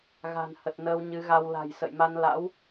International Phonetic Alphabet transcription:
ɣ a̤˨˩ n h ə˨˩ t̚ n əː˧ w ɲ ɨ˨˦ ɣ a˧ w l a̤˨˩ j s ə̰˧˨ j m a˧ n l a̰˧˥ w

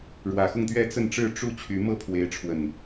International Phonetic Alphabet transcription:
ɻ w ä˨˩ x ʊ˥˨ ŋ t̪ ɥ ɛ˦ t͡s ə˥˨ n ʈ͡ʂ ɻ̩˥˨ ʈ͡ʂ u˥˨ t͡ɕʰ y˨˦ m ɤ˥˨ pʰ w e˨˦ ɪ̯ ʈ͡ʂʰ w ə˨˩ n

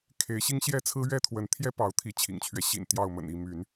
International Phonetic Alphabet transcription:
kʰ e˨˦ ɪ̯ ɕ i˦ ŋ ɕ j ɛ˥˨ t͡sʰ ɹ̩˦ ɥ ɛ˦ t̪ʰ w ə˨˦ n t̪ʰ j ɛ˦ p ɑ˨˦ ʊ̯ t̪ʰ i˨˦ t͡ɕʰ ḭ˨˩ ŋ t͡ɕʰ ɥ ɛ˦ ɕ ḭ˨˩ n t̪ j ɑ˥˨ ʊ̯ m ə̰˨˩ n i˥˨ m y˨˦ n

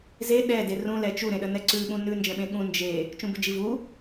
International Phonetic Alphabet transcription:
z e ɗ ɛ d e r ũ l ɛ t͡ʃ u ɾ ẽ ɗ ə n ɛ ǀ ʉ ɓ ũ n ʉ n d͡ʒ ɛ̃ ɓ ẽ ɠ ũ n d͡ʒ e | t͡ʃ ũ b ʉ d͡ʒ i v u

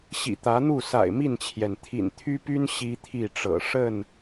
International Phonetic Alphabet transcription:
ɕ ḭ˨˩ t̪ ä˨˦ n̪ u˥˨ s a̰˨˩ ɪ̯ m i˥˨ n t͡ɕʰ j ɛ˩ n t̪ʰ ḭ˨˩ n t̪ʰ y˦ p y˦ n ɕ i˦ t̪ʰ i˥˨ ʈ͡ʂ ɤ̰˨˩ ʂ ə˥˨ n

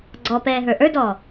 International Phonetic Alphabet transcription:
ɡ͡ǀ ɔ p ɛː ɦ ə˞ ʔ ə˞ d ɔː

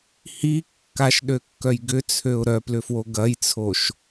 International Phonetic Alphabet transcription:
h i kː a ʃ ɗ ø kː œ j ɡ ʏ t͡sʰ ø ʊ̯ ɾ œ p l ʏ f w o ɡ ɐ j t͡sʰ o ʃ

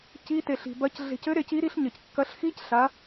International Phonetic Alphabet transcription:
c i˦˥ t e˧ ɬ i̤˧ b ɐ˦˥ c ɮ e̤˧ c ɘ˦˥ ɾ e˦˥ c i˦˥ ɾ i˦˥ ɬ ɲ ɘ˧ c kː ɐ˦˥ ɬ x i˦˥ c ɬ a˦˥

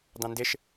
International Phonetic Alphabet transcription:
d ɑ̃ n d ɪ ʃ

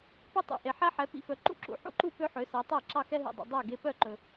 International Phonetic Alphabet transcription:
p ø˥ tˤ ṵ˩ ʔ e˩ ħ æ˥ ħ ɛ˩˥ p ḭ˧ f œ˩˥ ǃ ṵ˥˩ ǁ ṵ˩ ħ ṵ˥ ǃ u˥˩ p ø˥ ħ ø˩˥ s æ˩˥ tˤ æ˥˩ ǁ ɑ˥˩ x ɛ˥ ɦ ḭ˩ dˤ ḭ˩ dˤ æ˥˩ ɡ e˧ p œ˥˩ ǃ ɵ˩

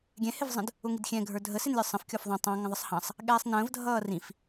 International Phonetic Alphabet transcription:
ɡʲ ɛ̃ h ɪ v zˤ ə̃ d | ʊ ŋ i d xʲ ɛ̃ ɡʱ ə˞ dʱ ə s ɪ n lʲ ə˞ sˤ ə̃ f kʲ ɔ f ðˤ ɑ̃ tˤ ɑ̃ ŋ ə̃ ðˤ ə sˤ h ɑ̃ sˤ | ɠ ɛː sˤ n ə̃ː v dʱ ʌː r ĩ f

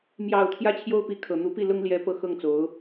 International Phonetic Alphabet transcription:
m j ɑ˨˩ ʊ̯ t̪ʰ j ä˥ t͡ɕʰ j o˥ ʊ̯ p i˧˥ kʰ ɤ˨˩ n̪ u˧˥ p i˥˩ l ʊ˥ ŋ l j ɛ˧˥ p ɤ˧˥ x ɤ˥˩ ŋ t͡s o˧˥ ʊ̯

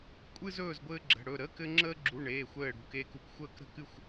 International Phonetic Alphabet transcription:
kʷʼ ɨ˥ z ɵː˥˧ z ɡʷ ɘː˥ ɡ͡ǁ ə̤˧˥˧ ɽ ɵ˥˧ ɾ ə˧˥˧ k ɘ˥ ŋ͡ǁ əː˥ ɡ͡ǁ u˧˥˧ ɳ eː˧˥˧ xʷ ɘː˥˧ ɽ ṳ˧˥˧ k eː˥ k u˧˥˧ k xʷ əː˥˧ k ɾ ə̤˥˧ k ɨ˥˧ xʷ

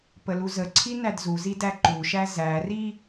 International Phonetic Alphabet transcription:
p ə l u z ə ǀʰ i n æ d z u z i d æ ǃ u ʃ æ z æ r i

